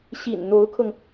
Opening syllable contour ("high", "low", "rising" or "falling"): low